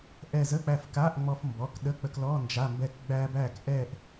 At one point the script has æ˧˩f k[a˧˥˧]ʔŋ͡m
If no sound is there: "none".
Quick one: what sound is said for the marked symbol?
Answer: a˧˥˧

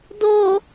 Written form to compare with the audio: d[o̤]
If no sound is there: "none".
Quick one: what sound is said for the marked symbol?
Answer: o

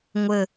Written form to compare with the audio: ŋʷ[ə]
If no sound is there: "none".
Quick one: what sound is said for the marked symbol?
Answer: ə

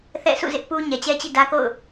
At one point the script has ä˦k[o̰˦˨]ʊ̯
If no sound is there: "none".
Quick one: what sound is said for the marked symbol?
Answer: o̰˦˨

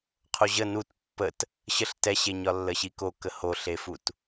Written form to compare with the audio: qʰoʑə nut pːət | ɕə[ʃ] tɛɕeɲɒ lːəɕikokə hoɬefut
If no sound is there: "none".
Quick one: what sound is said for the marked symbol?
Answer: ɬ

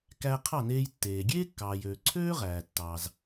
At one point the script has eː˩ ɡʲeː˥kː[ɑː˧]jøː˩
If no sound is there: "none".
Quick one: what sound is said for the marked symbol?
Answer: ɑː˩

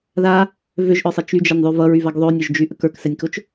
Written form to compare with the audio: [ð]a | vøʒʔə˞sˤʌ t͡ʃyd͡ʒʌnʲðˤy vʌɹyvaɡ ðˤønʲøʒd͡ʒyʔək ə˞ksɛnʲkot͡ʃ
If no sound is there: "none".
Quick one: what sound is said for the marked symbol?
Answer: ð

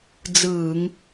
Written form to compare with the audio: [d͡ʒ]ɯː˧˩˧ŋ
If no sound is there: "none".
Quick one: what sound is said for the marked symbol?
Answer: d͡z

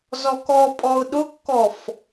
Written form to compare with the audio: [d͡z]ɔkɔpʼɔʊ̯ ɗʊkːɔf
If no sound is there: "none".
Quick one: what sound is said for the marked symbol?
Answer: z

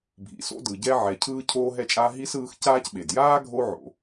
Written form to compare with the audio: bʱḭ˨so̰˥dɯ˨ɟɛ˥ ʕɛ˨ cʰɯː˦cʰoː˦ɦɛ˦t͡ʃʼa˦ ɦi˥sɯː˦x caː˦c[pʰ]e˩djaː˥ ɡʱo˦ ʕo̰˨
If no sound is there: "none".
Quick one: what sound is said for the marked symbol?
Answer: ɓ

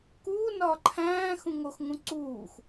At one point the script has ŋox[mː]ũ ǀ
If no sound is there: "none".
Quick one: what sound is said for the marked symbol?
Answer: ŋ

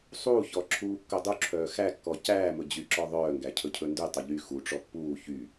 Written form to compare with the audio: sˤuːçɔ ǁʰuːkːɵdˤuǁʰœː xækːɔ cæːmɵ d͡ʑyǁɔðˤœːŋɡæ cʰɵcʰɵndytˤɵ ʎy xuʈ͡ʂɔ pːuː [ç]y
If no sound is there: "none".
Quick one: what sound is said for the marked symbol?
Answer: ç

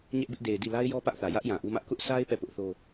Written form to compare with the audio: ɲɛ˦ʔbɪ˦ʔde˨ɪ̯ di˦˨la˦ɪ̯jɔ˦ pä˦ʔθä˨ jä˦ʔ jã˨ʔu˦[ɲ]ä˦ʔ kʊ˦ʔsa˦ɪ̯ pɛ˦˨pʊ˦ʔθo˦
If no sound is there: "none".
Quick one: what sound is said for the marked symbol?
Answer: m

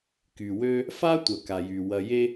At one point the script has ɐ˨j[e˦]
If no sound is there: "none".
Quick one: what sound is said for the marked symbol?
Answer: e˦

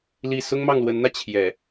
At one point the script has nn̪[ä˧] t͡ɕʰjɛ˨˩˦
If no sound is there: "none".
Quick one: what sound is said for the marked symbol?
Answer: ä˧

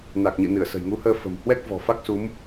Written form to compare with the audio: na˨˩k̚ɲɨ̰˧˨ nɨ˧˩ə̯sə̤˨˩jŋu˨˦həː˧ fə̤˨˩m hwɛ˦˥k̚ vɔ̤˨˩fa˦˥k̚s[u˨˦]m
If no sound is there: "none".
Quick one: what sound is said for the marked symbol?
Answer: u˨˦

